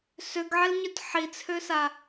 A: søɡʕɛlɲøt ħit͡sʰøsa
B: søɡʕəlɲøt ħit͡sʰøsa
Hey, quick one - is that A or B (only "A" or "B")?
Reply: A